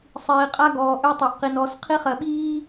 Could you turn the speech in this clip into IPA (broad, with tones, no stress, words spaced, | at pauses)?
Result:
sˤiː˨qʼa˦ɡɔː˨ʔø˦ tˤɛ˨ʔqi˨n ɔ˨˦s qʰi˦χɜ˨ɓiː˦